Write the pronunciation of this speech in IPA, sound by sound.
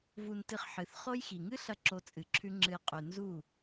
v u˧ n t ɨ˧ χ ħ ɨ˨ θ χ o˦ j x i˨ ŋ ɨ˦ ɬ ɐ˧ ǁ o˧ t͡sʼ ɨ˨ ǁʰ ʉ˦ ŋ͡ǁ ɨ˧ j qʼ ʉ˨ n z u˦˨

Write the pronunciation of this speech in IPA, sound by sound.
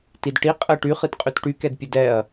t i d ʈ i qʼ ə ʈ y χ ɨ t qʼ y t ʈ y k ɛ d pʲ ə d ɛ ɐ̯

